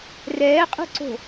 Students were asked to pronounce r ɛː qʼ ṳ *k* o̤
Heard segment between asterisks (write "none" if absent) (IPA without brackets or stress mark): ǀ